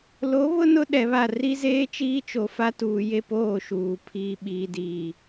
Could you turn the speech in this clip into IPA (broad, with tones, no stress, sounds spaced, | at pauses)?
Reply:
l o˨˦ β ʊ˦ n ʊ˦ ɗ ɛ˨ β a˦˨ r i˦ z eː˦ t͡ʃ iː˦ t͡ʃ o˨ f a˦ t uː˨ j e˦ p oː˦˨ ʃ uː˨ pʰ iː˨ ɓ iː˨ d iː˨